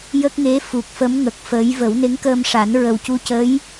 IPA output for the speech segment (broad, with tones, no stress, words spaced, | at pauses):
jə˦˥k̚ŋe˧˥fu˨˩k̚fə˧˥m ŋə˨˩k̚fəː˧˥j və˨˩˦wne˧˥ŋkəː˧mʂa˨˩˦n ɹə˨˩wcu˧cə˧˥j